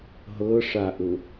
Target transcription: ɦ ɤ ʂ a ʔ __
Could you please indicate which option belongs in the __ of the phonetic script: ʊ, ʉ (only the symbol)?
ʊ